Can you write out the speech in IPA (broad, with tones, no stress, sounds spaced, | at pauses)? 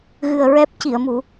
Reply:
ɣ ɨ˨˩ ə̯ ɹ ɛ˦˥ p̚ c i˨˩˨ ə̯ m u˨˩˦